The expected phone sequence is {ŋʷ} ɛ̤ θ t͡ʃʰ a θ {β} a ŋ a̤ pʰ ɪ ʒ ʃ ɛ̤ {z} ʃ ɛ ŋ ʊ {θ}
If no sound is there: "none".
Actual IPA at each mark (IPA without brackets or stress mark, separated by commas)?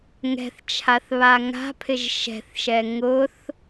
ŋ, β, θ, θ